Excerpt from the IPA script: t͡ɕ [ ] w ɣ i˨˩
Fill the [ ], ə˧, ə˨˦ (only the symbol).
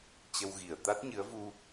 ə˧